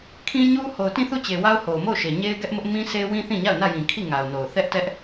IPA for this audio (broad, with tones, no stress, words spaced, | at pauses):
kʰĩ˦ɲu˦ ho˨ʊ̯tĩ˦˨θu˦˨t͡ɕe˨ wa˦ʊ̯ho˨ʊ̯mo˦˨ʊ̯ʃe˨ ɲe˦ɪ̯ɡɛ˦ʔmʊ˦ʔ mĩ˦sʰe˦ wĩ˦θĩ˦˨ɲa˦˨ʊ̯ nä˦˨jĩ˨kʰi˦˨ ŋa˨ʊ̯no˨ʊ̯ θɛ˦ʔtɛ˦ʔ